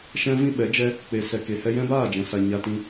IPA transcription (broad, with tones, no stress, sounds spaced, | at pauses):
ʃ ɛ̃˦ v ĩ˦ ɓ ɛ˨˦ d͡ʒ ɛ˦ | k͡p e˨ s ɛ˨ k e˨ h ɛ˧ j ɛ̃˦ b aː˦˨ d͡ʒ ɛ̃˨ s a˨ ɲ a˧ t ĩ˧